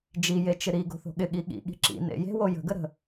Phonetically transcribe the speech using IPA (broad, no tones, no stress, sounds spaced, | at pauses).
d͡ʒ i j e t͡ʃ ɪ ɾ i ɡ o̤ θ o̤ ɠ ɪ ɠ i ɠ ḭ ɠ i̤ ǁ ḭ n ḛ j e̤ w o j ə̤ ɡ ə ɾ ə̤